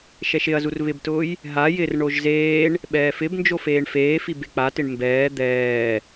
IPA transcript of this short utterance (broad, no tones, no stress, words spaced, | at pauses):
ʃɛʃɪɐ̯zur βɪbtʊːj | ɦa jɪr ɳoʒzeːɳ | ɓɛːfɪbnd͡ʒo feːɳfeːfi bek͡patɪɳ mbɛː d̪ɛː